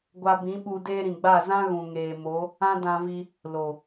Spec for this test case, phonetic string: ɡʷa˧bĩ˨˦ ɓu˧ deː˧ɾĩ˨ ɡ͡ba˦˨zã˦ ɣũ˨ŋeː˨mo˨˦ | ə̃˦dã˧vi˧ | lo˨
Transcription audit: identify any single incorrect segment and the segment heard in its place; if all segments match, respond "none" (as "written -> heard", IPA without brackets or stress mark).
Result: ə̃˦ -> ã˦